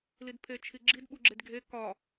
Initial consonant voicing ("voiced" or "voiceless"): voiced